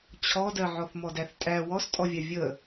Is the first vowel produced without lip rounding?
no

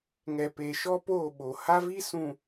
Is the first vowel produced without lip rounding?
yes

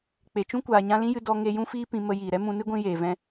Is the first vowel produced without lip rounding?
yes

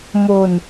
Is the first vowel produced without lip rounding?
no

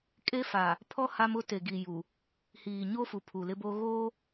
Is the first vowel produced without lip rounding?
yes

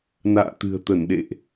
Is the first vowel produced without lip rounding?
yes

